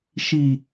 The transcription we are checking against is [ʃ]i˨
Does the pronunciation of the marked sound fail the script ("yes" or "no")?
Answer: no